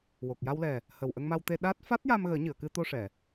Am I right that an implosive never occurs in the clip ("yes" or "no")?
no